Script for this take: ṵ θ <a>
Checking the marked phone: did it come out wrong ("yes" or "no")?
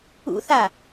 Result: no